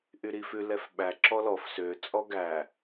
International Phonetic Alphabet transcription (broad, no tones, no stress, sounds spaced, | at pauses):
ʔ y ɾ i f ʉ l ɛ f ɓ æ ǁ ɔ l ɔ f s ø t͡sʼ ɔ ɡ æ